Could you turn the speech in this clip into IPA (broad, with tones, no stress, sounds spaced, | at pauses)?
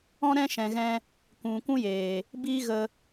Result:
ɔ̃˦ ɾ ɛ̃˦ ʃ ɛ̃˨ ɣ ɛ̃˧ | kʷ ũ˨ kʷ ũ˦ j eː˨ | b iː˦ ɣ ə˧